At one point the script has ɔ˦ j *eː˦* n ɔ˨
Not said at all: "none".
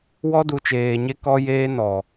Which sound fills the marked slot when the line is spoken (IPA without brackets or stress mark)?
eː˦